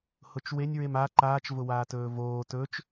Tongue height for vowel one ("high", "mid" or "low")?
high